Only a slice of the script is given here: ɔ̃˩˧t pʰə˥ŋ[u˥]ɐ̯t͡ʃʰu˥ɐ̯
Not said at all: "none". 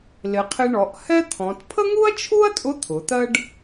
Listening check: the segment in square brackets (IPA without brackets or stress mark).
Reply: u˥